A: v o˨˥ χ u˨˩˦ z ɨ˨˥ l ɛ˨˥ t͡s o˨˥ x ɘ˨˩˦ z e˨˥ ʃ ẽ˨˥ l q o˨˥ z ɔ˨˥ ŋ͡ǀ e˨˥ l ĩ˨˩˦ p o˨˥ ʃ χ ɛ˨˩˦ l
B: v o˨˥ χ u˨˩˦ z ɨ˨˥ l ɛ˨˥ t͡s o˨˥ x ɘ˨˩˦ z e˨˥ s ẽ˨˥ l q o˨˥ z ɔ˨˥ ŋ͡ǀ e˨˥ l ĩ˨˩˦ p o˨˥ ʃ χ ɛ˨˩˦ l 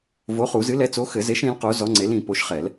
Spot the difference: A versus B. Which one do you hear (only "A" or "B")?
A